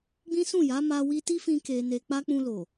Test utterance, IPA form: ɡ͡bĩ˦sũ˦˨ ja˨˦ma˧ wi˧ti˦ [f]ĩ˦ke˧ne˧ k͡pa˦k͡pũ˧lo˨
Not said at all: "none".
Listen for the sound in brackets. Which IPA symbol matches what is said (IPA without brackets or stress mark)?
f